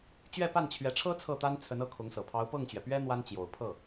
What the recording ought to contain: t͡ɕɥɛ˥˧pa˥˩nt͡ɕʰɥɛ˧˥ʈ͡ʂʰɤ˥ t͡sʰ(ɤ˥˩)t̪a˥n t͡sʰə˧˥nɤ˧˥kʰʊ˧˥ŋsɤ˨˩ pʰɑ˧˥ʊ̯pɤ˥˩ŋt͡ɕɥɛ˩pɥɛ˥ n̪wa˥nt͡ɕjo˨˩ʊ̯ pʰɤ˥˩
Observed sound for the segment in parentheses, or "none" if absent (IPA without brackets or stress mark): ɤ˥˩